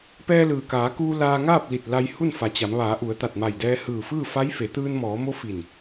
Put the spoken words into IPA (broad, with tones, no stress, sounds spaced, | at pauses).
p ɛː˧ l ɯː˩ k aː˩˧ k uː˧ l aː˧ ŋ aː˥˨ p̚ l i˧˩ t̚ l a˧ j h u˥˨ n f a˩˧ t͡ɕ a˩˧ m ʋ aː˩˧ ʔ u˩˧ ə̯ t̪ a˧˩ t̚ m a˧˩ j d ɛː˧ h ɯː˧˩ f ɯː˥˨ f a˧˥ j f e˩˧ t̪ ɯː˧ n m ɔː˩˧ m o˧˥ f i˧˩ n